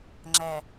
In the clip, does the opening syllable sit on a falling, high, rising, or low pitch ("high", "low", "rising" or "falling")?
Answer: low